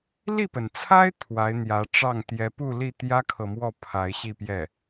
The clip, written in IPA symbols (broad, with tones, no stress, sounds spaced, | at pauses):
l i˥˩ p ə˩ n t͡sʰ a˥ ɪ̯ t̪ʰ w a˧˥ ɪ̯ n̪ j ä˧˥ ʈ͡ʂ ɑ˥˩ ŋ t̪ j ɛ˧˥ p u˥˧ l i˥˩ t̪ j ä˥ kʰ ɤ˨ m w ɔ˥˩ pʰ a˧˥ ɪ̯ ɕ i˥˧ p j ɛ˥˩